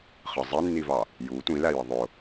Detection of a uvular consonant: present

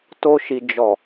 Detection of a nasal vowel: absent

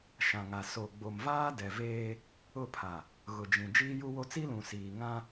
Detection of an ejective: absent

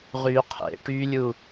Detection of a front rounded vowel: present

